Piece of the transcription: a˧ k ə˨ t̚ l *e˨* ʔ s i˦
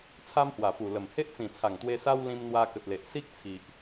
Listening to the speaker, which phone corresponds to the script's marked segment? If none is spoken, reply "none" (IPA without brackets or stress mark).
e˨